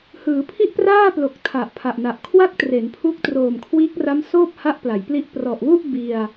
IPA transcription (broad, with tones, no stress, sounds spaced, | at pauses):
h ɯː˩˦ pʰ i˥˩ ʔ p r aː˥˩ p l o˨˩ k̚ tʰ a˨˩ ʔ pʰ a˨˩ ʔ n a˨˩ ʔ kʰ w a˥˩ k̚ t r e˩˦ n pʰ u˦˥ k̚ t r oː˨˩ m kʰ w iː˦˥ k̚ r a˦˥ m s oː˥˩ p̚ h a˦˥ ʔ p l a˩˦ j p l i˥˩ ʔ p r ɔ˨˩ ʔ w u˥˩ ʔ b i˧ a̯